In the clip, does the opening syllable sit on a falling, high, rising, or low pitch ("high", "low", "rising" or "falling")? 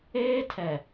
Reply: high